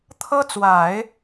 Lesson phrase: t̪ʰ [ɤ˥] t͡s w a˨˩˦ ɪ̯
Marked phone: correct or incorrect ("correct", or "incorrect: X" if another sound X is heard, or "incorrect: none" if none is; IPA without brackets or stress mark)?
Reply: correct